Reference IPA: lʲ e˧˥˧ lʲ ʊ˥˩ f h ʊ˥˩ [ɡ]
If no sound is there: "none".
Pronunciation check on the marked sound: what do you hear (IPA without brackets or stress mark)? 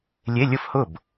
b